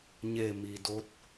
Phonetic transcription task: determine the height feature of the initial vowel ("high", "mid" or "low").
mid